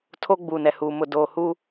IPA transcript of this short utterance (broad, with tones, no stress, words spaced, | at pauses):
tʰo˦ɡ͡buː˨nɛ˨huː˨ mʊ˨doː˨hu˦